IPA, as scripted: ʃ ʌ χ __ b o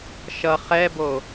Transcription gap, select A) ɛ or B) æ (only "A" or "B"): A